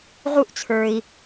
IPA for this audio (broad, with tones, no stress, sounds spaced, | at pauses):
ʁ u˧˥ ʔ t͡sʰ ə˞˩ i̯